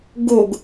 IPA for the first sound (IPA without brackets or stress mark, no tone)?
ɡ